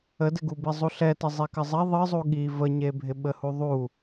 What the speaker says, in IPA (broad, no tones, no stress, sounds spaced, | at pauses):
ə d ɪ ɡ u b i zˤ u ɬ ɛ t ɪ zˤ e k ɘ zˤ ɛ ðˤ ɨ zˤ u ɠ i v ə ɲ e bʱ ɪ ɓ ə h u ðˤ u